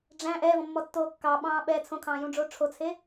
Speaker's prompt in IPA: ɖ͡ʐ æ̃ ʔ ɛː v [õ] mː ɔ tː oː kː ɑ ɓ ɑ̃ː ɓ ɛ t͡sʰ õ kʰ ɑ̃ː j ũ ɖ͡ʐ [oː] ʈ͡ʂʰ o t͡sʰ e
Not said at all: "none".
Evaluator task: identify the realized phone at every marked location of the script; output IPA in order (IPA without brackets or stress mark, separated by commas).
ɔ̃, oː